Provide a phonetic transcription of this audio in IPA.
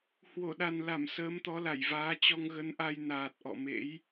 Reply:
h w o˧˩ ɗ a˨˩ n l a˧˩ m s əː˨˦ m t̪ ɔ˨˦ l a˧˩ j v aː˨˦ t͡ɕ ɔ˧ ŋ ɣ ə˨˦ n ʔ a˧ j n aː˨˩ t̚ ʔ ɔ̰˧˨ m ḛ˧˥ j

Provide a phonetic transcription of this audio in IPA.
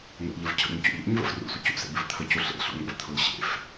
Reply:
n ɛ̰ ʎ ə v cʰ ə̰ ɲ c ṵ ʎ ɛ̰ ɲ v ə̰ f r ṵ sʷ ə c ṵ s ḛ b ɪ v t̪ʰ ə c u ɬ ḛ ɬ ṵ ŋ ɛ̰ v t̪ʰ ʊ l ɕ ḛ f

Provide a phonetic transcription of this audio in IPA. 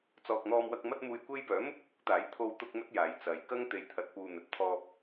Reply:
t͡s ɔː˨ k̚ n̪ ɔː˧ m w ɐ˧ k̚ m ɐ˥ t̚ m uː˧ j kʷ e˥ j p œː˨˥ m ʊ˥ k̚ ʊ˨ k̚ ʊ˨˥ k̚ t̪ aː˨˥ j t̪ʰ o˧ w t̪ ʊ˥ k̚ m ɵ˥ t̚ j aː˨˧ j t͡s ɐ˨ j k ɐ˥ ŋ t̪ e˨ j t̪ʰ ɐ˨ t̚ p uː˨ n̪ ɵ˨ t̚ t̪ʰ ɔː˧ p̚

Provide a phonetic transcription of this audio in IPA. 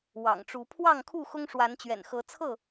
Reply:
w ɑ̰˨˩ ŋ ʈ͡ʂ u˨˦ pʰ w ɑ˥˨ ŋ kʰ u˥˨ x ʊ˦ ŋ ʂ w a˨˦ n t͡ɕ ɥ ɛ̰˨˩ n x ɤ˨˦ t͡sʰ ɤ˥˨

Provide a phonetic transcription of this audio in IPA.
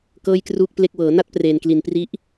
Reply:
k ɤː˥˩ j k r uː˥˩ k̚ p l e˥˩ k̚ w ɤː˩˦ n a˥˩ t̚ p r eː˨˩ n k l i˨˩ n p r i˦˥ ʔ

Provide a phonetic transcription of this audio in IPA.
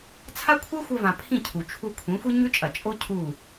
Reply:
t͡sʰ a˦ kʷʰ e˦ xʷ ɐ˧ v ã˨ pʰ ĩ˦˨ cʰ u˨ t͡ʃʰ u˧ kʷʰ ĩ˨˦ xʷ i˦ ɲ ʉ˦ t͡ʃʼ ɐ˨ t͡ʃʼ o˦ cʰ u˦˨

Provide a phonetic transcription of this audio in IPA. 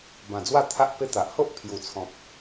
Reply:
b ã˨˩ d͡z w a˥˧ t̪ʰ a˦ ʔ p e˧ t̪ a˨ ʔ h o˦ ʔ pʰ j u˨˩ t͡sʰ ɔ̃˨ p̚

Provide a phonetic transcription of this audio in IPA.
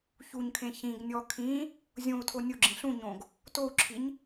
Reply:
ç u ɲ kʰ ẽ ç ĩ ɡ nʲ ɔ kʰ ĩ | zʲ õ u̯ tʰ o nʲ o ɡ͡ǁ ĩ ɬ ũ ɲ õ ɡ | t o u̯ ǁʰ i ɲ

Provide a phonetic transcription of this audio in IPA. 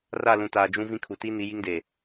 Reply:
r a˦˨ l ũ˨ t aː˨ d͡ʒ ũ˦ v ĩ˦ kʰ u˨ t i˦ n i˨˦ j i˦ ŋ d e˨

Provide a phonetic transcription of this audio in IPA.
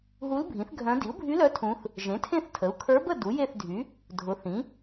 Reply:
ɦ u˧˥ l bʱ ĩ˩˥ θ ɡʱ œ̃˧˥ d i˩˥ u̯ bʱ y˧˥ l œ˧˥ tʰ ũ˧˥ θ | ʒ ẽ˩˥ tʰ ẽ˥˨ θ tʰ ə˩˥ u̯ kʰ ə˞˧˥ b ə˥˨ d u˩˥ j e˥˨ θ dʱ y˩˥ | dʱ ʊ˩˥ θ ĩ˩˥

